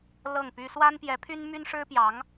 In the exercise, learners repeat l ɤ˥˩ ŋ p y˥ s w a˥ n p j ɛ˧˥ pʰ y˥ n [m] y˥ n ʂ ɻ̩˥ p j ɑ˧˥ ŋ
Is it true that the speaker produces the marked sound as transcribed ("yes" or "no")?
yes